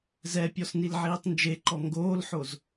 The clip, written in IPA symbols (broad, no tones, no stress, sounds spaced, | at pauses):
z ɛ pʲ ɔ s n i l ʕ iː tˤ n d͡ʒ e ǃ ɔ ŋ ɡ oː l ħ o z